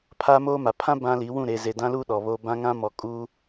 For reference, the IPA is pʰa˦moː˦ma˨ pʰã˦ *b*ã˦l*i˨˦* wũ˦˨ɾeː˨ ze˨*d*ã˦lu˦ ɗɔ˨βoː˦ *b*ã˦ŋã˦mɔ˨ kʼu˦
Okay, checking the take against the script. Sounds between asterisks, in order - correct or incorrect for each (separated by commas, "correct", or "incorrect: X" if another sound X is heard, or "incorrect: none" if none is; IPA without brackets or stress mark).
correct, correct, correct, correct